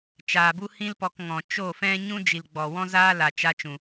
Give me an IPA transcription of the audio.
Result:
t͡ʃ aː˨ b u˦ h ĩ˦ l p ɔ˧ k ŋ ɔ̃˨ t͡ʃ o˦˨ f ɛ̃˦ ɲ ũ˦ d͡ʒ i˨ l ɡ͡b ɔ˨ w ɔ̃˦ z aː˦ l a˨ t͡ʃ a˧ t͡ʃ ũ˨

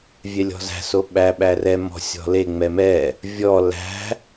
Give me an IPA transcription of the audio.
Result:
vʲ ɛ lʲ ɔ̤ z æ̤ s o ɓ æ ɓ æ r ɛ m ɔ̤ sʲ ɔ̤ l e ŋ͡m ɛ m ɛ | vʲ ɔ l æ̤

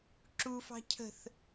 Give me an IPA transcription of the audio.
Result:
ǁ u f ɑ̤ cʰ ə̤ θ

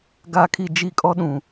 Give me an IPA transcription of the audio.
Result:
ɡ a˦˨ kʰ i˦˨ d͡ʒ i˦ kʼ ɔ˦ ɗ ũ˨

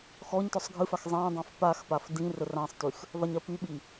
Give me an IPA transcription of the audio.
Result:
x ɔ ɲ t ɔ sˤ ɡʱ ɨ f a x zˤ ã dˤ ã f p a x p a f d ĩ r ə r ã sˤ t y x | ðˤ ə ɲ ɜ p y ɓ i

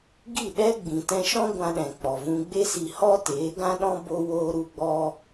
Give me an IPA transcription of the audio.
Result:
ɡ i˦˨ ɗ ɛ˦ ɡ͡b ĩ˨ t ɛ̃˧ ʃ ɔ̃˦ ɡʷ ã˧ ɗ ɛ̃˨ k͡p ɔ˨ v ũ˧ ɡ͡b e˦ s i˧ h ɔ˦ t eː˨˦ ɡ ã˦ ɗ ɔ̃˦ b o˧ w oː˧ ɾ u˧ ɡ͡b ɔ˧

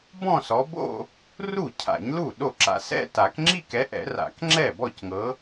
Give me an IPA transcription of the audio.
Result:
b ɔ̃˥˧ s ɔ˨˦ b o̰˥˧ | r u˥˩ cʰ a̰˨˩˦ ɲ l u˥˩ ɗ o˥˩ ǁ a̰˨ s ɛ̰˥˧ t a˨˩˦ k ŋ͡ǁ i˥˧ k ɛ˨˦ ʔ ɛ̰˨˩˦ r a̰˨˩˦ k ŋ͡ǁ ɛ˥˩ b ɔ˥˩ c ŋ ɤ˨˦

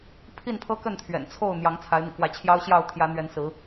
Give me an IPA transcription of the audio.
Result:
pʰ i˥˨ n pʰ ɤ˦ k ə˥˨ n t̪ʰ ɥ ɛ̰˨˩ n t͡sʰ o˥˨ ʊ̯ n̪ j ɑ˨˦ ŋ t͡sʰ a˨˦ ɪ̯ n̪ ḭ˨˩ k w ä˨˦ t͡ɕʰ j ɑ˦ ʊ̯ ɕ j ɑ˥˨ ʊ̯ t̪ʰ j ä˨˦ n̪ ɥ ɛ˨˦ n s ɹ̩˨˦

